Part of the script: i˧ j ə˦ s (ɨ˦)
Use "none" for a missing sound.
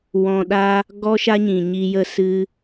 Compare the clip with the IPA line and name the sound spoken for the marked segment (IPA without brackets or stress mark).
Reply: ɨ˦